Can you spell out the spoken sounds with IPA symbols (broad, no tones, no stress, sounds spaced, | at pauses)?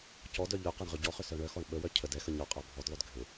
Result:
c ɔ d œ ʎ œ q a ɳ ʁ ʏ ɟ ɔ χ ʏ s œ ɳ œ x ɔ ɳ ɓ ə w œ cʰ ə d ɛ x ə ɲ ɔ qʼ a bʱ ɔ d lˠ œ d ɡʱ ʏ